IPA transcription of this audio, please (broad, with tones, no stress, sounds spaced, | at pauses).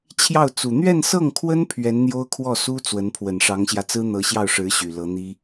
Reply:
t͡ɕʰ j ɑ˥˩ ʊ̯ t͡s u˨˩ n̪ ɥ ɛ˥˧ n s ɤ˥˩ ŋ kʰ w ə˥ n pʰ ɥ ɛ˧˥ n n̪ j o˥ ʊ̯ kʰ w ɔ˥˩ s u˥ t͡s w ə˧˥ n pʰ w ə˨˩ n ʂ ɑ˧˥ ŋ ɕ j ä˧ t͡s ɹ̩˥ n̪ ɤ˧˥ ɕ j ɑ˥˩ ʊ̯ ʂ ɻ̩˧˥ ɕ y˨˩ l ɤ˧˥ n̪ i˥